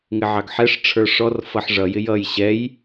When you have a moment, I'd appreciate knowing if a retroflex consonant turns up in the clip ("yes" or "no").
yes